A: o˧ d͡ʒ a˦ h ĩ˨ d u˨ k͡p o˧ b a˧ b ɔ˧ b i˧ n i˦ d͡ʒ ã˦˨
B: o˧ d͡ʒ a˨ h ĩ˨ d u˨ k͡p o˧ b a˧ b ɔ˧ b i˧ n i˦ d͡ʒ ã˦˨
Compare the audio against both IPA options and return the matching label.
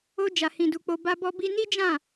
B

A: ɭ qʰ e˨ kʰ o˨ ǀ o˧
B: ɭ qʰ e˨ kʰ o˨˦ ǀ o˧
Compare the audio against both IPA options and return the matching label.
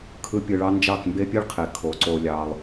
B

